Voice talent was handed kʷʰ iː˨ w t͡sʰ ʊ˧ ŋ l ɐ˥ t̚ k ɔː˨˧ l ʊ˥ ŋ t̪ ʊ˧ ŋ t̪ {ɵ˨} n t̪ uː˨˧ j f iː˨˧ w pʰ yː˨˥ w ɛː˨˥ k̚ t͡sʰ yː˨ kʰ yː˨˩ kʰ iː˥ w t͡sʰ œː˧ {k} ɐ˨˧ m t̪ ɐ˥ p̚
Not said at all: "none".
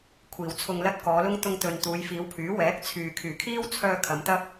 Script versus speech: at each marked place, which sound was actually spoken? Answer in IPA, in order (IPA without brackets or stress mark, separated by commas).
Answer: ɵ˨, kʰ